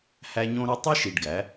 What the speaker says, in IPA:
h æ˦ ɲ õ˦ ɾ ø˦ tˤ i˦ ʃ i˨ ɖ ɡ æ˨˦

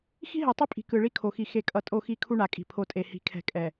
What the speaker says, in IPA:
x i̤˦ ɦ ɛ˨ tˤ ɯ˦ pʼ i̤˨ k ɯ˨ ɭ i˦ kʰ o˨ x i˨ x e˨ kʼ ʌ˨ tʼ o˦˨ x i˦˨ kʰ u˦ ɳ a˨ kʼ i̤˨ pʰ o˨ tʼ e˨ h i̤˨˦ kʰ ɛ̤˨ kʼ ɛ˨

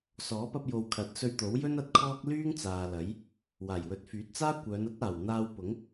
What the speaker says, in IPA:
s ɔː˨˥ p ɐ˧ p̚ j o˨ w kʰ ɐ˨˥ t̚ s ɵ˧ ɥ t̪ o˨˥ w j ɵ˥ n ɐ˧ t̚ kʰ ɔː˥ k̚ l yː˥ ŋ t͡s aː˨ l ɐ˨˥ j | w aː˨˩ j w ɵ˨˥ t̚ f yː˨˥ t̚ t͡s aː˥ kʷ œː˨˧ n ɐ˥ t̚ aː˨˩ w n̪ aː˧ w p ʊ˨˥ ŋ

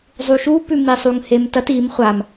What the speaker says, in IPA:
zˤ u ʃ u p ʉ m i sˤ u ŋ h e m t ɐ t i m χʷ a m

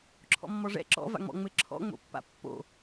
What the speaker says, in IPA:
ǁʰ ɔ̰ mː ɔ ʐ ɛ̰ ǁ ɔ̰ v a̰ ŋ͡m ɔ̰ ŋ͡m ɘ ǁʰ ɔ̰ ŋ͡m o̰ pː a̰ pː o̰

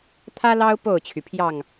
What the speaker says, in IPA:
t̪ʰ ä˦ l ɑ˦ ʊ̯ p o˥˨ ʊ̯ t͡ɕʰ y˩ pʰ j ɑ˥˨ ŋ

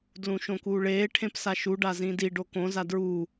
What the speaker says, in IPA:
d l ũ ʃ õ k uː ɭ eː ʈʰ ẽ p s a ʃ u ɖ a z ĩ d i ɖ o k õ z a d ɹ uː

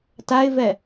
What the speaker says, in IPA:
t a ɪ̯ v ɛ

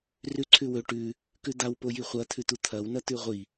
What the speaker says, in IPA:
r ʉ ǀʰ ʉ w ɵ ʈ ʉ | k ʉ d̪ a w p o j i χʷ ɐ t̪ʰ ʉ t̪ u t̪ʰ ɐ w n ɐ t̪ ʉ ʁʷ i

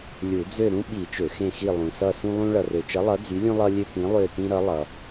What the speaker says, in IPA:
lʲ u˨˩˦ d͡z ø˦˨ ɾ ũ˦ ɓ i˨˩˦ t͡ʃ ø˨˩˦ x ẽ˦˨ x i˦˨ lˠ ũ˨ s ʌ˦˨ s ũ˦ lˠ ũ˦ ɭ ʌ˨ r ø˨ t͡ʃ ʌ˨˥ lˠ ʌ˨˥ d͡z y˨˥ lʲ ũ˦ lˠ ʌ˦ lʲ ø˦ p ĩ˨˥ lˠ ø˦˨ t ĩ˦ ɾ ʌ˨˥ lˠ ʌ˨

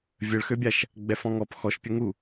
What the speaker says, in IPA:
vʲ ə ɭ x ø bʲ a ʃ | ɡ͡b ɛ f ɔ̃ ŋ ɔ p x ɔ ʃ pʲ ə ŋ u

